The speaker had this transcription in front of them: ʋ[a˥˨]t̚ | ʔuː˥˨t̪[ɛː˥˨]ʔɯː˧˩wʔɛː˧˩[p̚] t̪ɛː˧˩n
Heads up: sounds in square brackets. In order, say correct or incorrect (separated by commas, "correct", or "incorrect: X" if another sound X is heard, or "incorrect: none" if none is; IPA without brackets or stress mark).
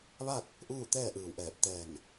correct, correct, correct